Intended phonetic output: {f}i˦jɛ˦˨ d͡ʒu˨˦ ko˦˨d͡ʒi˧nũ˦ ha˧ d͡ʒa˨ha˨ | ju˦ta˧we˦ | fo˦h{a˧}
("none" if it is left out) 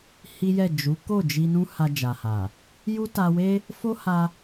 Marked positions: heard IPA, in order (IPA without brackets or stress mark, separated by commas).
h, a˧